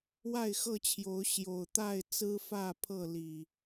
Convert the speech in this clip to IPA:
w a˥˨ ɪ̯ x ɤ˥˨ t͡ɕʰ j o˨˦ ʊ̯ ɕ j o˨˩ ʊ̯ t̪ a˥˨ ɪ̯ t͡s ɹ̩˦ f ä˥˨ pʰ ɤ˥˨ l i˨˩

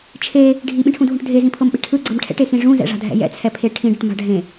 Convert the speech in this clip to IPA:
t͡ʃʰ e | ɖʱ i ɓ ĩ ʈʰ ũ dʱ ũ ʈ dʱ e z ĩ pʰ ɤ m ɓ e̤ ʈʰ ɯ ɡ͡ǀ ɤ m ʈʰ ɛ̰ ʈ e x ĩ ʐ ũ z ɛ̰ ʐ a̤ dʱ ɛ̰ j ɛ̰ t͡sʰ ɛ pʰ e ʈʰ ĩ ɖ ɤ ʈ m a̤ ɖʱ ẽ

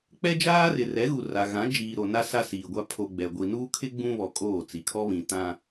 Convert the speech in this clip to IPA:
k͡p ɛ˦ d͡ʒ aː˦ r ɪ˨ r ɛ˨˦ ɣ u˨ r a˨ ɣ ã˨˦ d͡ʒ iː˨ ɾ o˨ n a˦ s a˦ s iː˨ ɡʷ a˦ pʰ o˨ ɡ͡b ɛ˨ ɡʷ i˨ n uː˦ kʰ ɪ˦ ɡ͡b ũ˦ β ɔ˨ kʼ oː˦˨ t͡s i˨ kʰ ɔ˦ β ĩ˨ t ã˦

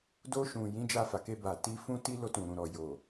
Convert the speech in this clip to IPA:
d o˧ ʃ ũ˨ j ĩ˨˦ d͡ʒ a˧ f a˨ k e˧ b a˨ t i˧ f ũ˦ t i˦ l o˧ t ũ˨ ɾ ũ˨ ɾ ɔ˨ j o˨

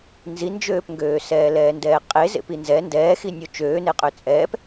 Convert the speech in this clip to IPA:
n z i n d͡ʒ øː p ŋ ɡ øː s ɛː l ɛː n d ɛː qʼ e z ḛ p i n z ɛ n d ɛː x i nʲ o t͡ʃ øː n e qʼ ø t͡sʼ ɛː p

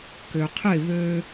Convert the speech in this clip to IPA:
k ø qʰ ɪ β ø

